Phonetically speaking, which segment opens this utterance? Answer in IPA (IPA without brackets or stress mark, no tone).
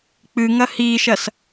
k͡p